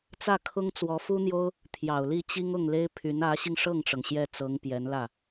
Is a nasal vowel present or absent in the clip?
absent